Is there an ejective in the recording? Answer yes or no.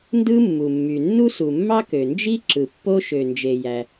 no